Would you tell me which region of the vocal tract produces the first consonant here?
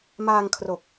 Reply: lips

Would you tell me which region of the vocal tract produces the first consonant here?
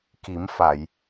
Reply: velum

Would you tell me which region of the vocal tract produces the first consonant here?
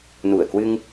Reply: tongue tip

